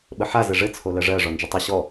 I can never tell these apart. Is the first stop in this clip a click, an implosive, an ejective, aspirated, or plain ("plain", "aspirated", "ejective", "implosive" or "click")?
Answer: implosive